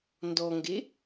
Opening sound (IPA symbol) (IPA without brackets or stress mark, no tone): n